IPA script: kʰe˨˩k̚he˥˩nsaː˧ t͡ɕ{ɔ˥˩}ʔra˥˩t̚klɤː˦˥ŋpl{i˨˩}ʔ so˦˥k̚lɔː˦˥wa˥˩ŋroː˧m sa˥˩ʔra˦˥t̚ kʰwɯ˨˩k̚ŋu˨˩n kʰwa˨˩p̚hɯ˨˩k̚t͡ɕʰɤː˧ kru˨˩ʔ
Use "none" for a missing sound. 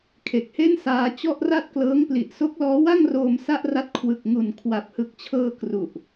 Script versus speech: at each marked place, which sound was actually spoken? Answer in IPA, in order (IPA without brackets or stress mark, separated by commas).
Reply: ɔ˥˩, i˨˩